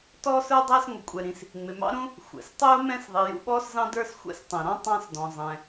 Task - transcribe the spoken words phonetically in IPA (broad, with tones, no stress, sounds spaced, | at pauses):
t ɔː˥ s ə˞˥ dˤ æ˥ s ŋʷ ə˩ kʷʼ ɛ˩ ɾ ĩ˩ s | ŋ͡m ɪ˩ m ɑ̰˥ ɾ ũ˥ | xʷ ɛ̰˩ s tˤ ʊː˥ m ɛ̃˥ s ðˤ i˩ j ṵ˥ ɓ ɔː˥ s z ɑ̃˥ d ə˞˥ s xʷ ɛ̰˥ s tˤ ɛ̃˩ ɾ ɔ̃˥ tˤ ɑ̃˥ s d ɔ̃˩ zˤ ɛ̃˩